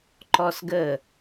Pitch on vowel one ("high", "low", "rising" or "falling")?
high